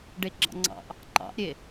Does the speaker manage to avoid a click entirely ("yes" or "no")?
no